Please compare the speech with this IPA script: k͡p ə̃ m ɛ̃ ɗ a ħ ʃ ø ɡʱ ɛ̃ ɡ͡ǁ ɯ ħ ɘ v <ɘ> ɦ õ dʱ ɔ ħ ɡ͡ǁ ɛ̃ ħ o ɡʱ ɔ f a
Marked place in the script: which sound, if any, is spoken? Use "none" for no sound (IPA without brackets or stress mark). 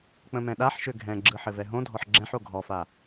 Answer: ɛ